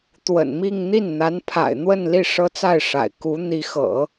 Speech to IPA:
t̪wə̰˨˩nmi˥˧ŋ n̪i˥˩nn̪a˧˥npʰa̰˨˩ɪ̯ n̪wə˥˧nli˥˩ ʂɤ˥t͡sa˥˩ɪ̯ʂa̰˨˩ɪ̯ ku˧˥ n̪i˧˥xɤ̰˨˩˦

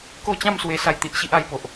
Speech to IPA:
ko˥˧t͡ɕã˥˧m swe˦sa˥˧jt̪i˦ʔɕi˦ʔ a˧jpo˨ʔ

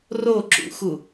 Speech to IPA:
roǁṵxu

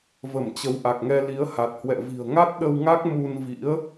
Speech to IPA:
və˧˩mt͡ɕə˨˦wʔa˨˩k̚ŋɛ˧ li˨˦ə̯ha˨˩t̚hwɛ̰˧˨ vi̤˨˩ə̯ŋa˦˥t̚ɗə˧wŋa˦˥k̚ mu˧nvḭ˧˥ə̯

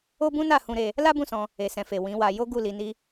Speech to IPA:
o˦bũ˦na˦˨ hũ˧ɾe˧ | la˦bũ˦˨sɔ̃˧ | e˨sɛ̃˨fe˨ wĩ˨˦wa˧ jo˦ ɡu˦˨li˨˦ ni˦

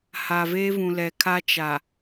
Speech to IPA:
ha˨veː˦vũ˨lɛ˨ kʰa˦t͡ʃa˨

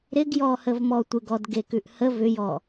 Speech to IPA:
ɾɪɡjɔhəvmɔ tʷɪɡɔd ɡekʉʔhə vʏjɔ

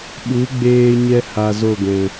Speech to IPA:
ɓu˨˦ɡ͡beː˧ɲɛ˧ha˨ zo˦˨ɡɛ̃˨

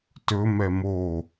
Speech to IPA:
tɵmɛ mo

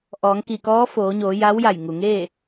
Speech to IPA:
ʔɔː˩˧ŋki˧˩kɔː˧˥ foː˩˧ɲoː˩˧ ja˧˥wja˧˩jŋu˩ŋeː˥˨

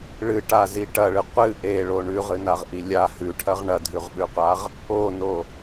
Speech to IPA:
ɭɨʈazi ʈɐɭɨ qʷɨ ʔeɭo ɳʉʁɨnaʁʔi lʲa hʉʈʰɐʁ ɳɐdʱʉʁɓʉqʷaʁ | ono

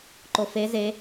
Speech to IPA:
ǃofe ze

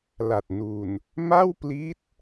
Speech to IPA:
la˨˩t̚nu˨˩n | ma˥˩wpli˦˥t̚

